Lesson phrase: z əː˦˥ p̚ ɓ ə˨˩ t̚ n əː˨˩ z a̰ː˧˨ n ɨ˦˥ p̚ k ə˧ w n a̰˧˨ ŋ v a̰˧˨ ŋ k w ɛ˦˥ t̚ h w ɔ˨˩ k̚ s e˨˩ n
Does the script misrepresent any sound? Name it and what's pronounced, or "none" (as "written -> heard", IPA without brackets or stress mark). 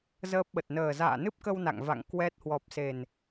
k̚ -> p̚